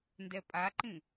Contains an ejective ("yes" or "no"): yes